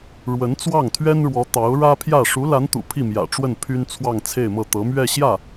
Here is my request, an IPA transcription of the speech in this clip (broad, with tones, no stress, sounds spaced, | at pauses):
ɻ w ə˧˥ n t͡s w ɑ˥˩ ŋ t̪ʰ ɥ ɛ˥ n ɻ w ɔ˧˥ t̪ ɑ˧˥ ʊ̯ ɻ ä˥ pʰ j ä˥˩ ʂ u˧˥ l a˧˥ n t̪ ṵ˨˩ pʰ i˥˩ m j ä̰˨˩ ʈ͡ʂ w ə˥˩ n pʰ y˥ n t͡sʰ w ɑ˥˧ ŋ t͡sʰ e˥˧ ɪ̯ m ɤ˥˩ t̪ ɤ˧˥ m ɥ ɛ˥˧ ɕ j ä˥˩